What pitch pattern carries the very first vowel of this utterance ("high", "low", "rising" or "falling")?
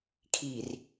low